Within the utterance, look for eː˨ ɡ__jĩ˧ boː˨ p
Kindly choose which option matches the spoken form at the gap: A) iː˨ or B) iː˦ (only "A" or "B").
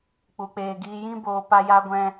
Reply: A